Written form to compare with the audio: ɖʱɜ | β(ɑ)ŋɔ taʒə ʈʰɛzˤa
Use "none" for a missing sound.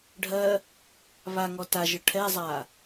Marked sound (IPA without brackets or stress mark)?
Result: a